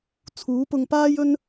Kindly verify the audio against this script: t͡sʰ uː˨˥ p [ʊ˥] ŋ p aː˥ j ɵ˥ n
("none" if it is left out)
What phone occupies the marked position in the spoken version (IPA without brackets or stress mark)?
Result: ʊ˧